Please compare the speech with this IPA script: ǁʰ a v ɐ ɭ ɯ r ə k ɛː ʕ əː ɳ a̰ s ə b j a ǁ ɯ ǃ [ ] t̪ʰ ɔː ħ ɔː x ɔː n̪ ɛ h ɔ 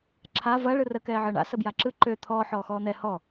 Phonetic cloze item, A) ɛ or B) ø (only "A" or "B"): B